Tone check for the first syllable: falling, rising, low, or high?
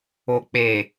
low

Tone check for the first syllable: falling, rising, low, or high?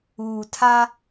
low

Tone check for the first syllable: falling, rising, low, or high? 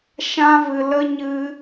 high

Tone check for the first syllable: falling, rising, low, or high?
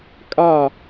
falling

